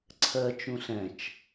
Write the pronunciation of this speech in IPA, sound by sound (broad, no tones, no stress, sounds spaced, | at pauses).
ǀʰ ɜ t͡ʃ ũ ɬ ɛ̃ t͡ʃ